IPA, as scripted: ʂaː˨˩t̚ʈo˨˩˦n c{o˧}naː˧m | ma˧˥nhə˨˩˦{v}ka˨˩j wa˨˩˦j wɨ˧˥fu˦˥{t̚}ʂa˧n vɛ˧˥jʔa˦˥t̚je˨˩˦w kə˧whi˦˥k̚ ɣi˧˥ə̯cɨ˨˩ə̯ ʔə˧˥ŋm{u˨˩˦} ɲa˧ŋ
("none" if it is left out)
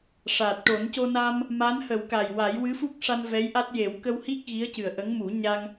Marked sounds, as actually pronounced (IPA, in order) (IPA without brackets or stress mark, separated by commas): o˧, w, k̚, u˨˩˦